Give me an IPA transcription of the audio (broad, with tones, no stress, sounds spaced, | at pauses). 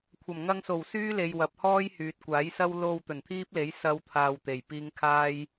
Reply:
kʷʰ ɐ˨˩ m ŋ ɐ˧ ŋ s o˨˩ w s yː˥ l e˨ j w ɐ˨ p̚ h ɔː˥ j h yː˨ t̚ kʷ aː˨˥ j s ɐ˥ w l o˧ w t̪ ɵ˨˩ n t̪ʰ iː˥ p̚ l e˨˥ j s ɐ˨˧ w t̪ʰ aː˧ w t̪ e˨˩ j p iː˥ ŋ kʰ aː˥ j